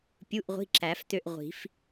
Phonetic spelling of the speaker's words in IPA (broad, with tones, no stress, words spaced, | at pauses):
pʲu˧˥˧ʔʁʷi̤˧˥˧ǁæ˨˩˦ft̪ø˦˨ʔ ʁʷi̤˨˩˦f